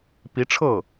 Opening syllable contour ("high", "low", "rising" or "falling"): rising